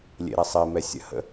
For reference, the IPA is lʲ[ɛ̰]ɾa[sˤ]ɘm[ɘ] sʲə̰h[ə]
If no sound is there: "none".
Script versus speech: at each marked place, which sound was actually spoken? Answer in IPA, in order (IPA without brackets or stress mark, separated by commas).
ḛ, sˤ, ɛ, ə̰